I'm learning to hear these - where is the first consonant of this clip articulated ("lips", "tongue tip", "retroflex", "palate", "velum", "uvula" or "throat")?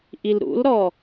throat